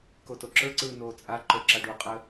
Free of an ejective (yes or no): no